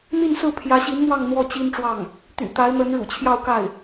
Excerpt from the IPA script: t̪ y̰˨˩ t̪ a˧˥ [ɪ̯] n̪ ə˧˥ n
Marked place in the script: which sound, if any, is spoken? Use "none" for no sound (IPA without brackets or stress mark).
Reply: ɪ̯